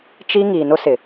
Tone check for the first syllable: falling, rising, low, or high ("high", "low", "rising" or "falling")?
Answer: high